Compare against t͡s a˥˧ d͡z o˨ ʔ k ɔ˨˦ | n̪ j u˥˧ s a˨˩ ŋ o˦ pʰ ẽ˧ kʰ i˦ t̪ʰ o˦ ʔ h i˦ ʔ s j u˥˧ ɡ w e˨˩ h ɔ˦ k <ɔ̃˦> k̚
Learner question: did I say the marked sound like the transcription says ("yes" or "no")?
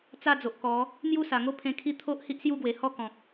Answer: no